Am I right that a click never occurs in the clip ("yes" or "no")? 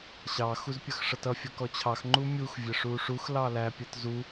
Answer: no